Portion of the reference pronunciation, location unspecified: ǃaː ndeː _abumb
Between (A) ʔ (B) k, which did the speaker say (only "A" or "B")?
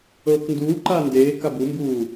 B